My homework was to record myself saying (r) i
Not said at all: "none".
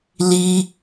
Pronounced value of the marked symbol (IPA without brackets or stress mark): l